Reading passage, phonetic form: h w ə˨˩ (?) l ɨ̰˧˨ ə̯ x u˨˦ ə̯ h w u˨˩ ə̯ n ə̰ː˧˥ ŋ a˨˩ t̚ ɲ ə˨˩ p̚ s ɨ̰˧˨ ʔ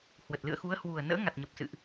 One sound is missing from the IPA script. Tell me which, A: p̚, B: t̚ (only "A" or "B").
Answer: B